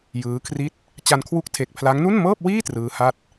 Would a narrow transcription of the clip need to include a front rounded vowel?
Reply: no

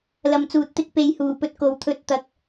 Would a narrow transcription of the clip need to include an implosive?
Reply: no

